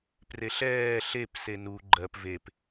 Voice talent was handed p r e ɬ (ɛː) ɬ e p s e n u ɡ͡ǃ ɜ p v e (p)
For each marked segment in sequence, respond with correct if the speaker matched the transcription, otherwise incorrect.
correct, correct

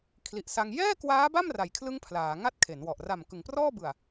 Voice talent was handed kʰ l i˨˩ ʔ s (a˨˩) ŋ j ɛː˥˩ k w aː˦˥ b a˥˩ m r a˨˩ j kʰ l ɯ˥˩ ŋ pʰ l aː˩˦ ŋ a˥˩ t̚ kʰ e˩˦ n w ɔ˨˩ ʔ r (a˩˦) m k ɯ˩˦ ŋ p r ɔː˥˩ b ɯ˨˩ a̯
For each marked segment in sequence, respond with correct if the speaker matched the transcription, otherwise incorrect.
incorrect: a˧, incorrect: a˨˩

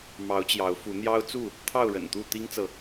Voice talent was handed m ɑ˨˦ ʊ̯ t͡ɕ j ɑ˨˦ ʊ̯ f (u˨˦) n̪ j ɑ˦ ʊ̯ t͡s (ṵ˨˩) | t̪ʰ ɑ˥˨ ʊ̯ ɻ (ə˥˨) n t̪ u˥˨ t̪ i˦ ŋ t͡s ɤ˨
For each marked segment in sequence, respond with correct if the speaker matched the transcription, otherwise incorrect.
correct, incorrect: u˥˨, incorrect: ə̰˨˩

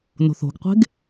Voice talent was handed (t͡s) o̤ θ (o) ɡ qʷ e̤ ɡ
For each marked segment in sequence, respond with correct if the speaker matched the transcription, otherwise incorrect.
incorrect: n, incorrect: o̤

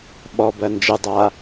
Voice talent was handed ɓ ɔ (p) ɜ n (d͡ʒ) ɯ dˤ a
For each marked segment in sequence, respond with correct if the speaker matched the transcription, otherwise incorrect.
incorrect: b, correct

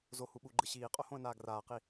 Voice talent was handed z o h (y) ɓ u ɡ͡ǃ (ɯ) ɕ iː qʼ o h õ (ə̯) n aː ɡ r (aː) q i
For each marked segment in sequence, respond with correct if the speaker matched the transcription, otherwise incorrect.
incorrect: u, correct, correct, correct

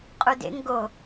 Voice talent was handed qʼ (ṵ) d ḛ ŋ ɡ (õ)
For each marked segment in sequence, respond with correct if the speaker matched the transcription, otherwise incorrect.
incorrect: u, incorrect: o

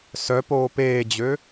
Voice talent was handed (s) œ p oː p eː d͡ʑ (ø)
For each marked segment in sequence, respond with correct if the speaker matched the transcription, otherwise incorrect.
correct, correct

